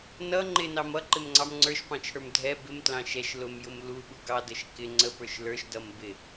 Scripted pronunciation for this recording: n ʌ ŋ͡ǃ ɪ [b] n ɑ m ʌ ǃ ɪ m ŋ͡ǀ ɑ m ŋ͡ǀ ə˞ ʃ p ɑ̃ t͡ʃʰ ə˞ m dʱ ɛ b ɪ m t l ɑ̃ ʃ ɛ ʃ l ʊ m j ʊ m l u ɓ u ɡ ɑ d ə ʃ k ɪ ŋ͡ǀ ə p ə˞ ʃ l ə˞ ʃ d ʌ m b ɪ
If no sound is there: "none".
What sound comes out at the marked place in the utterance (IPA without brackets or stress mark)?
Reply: none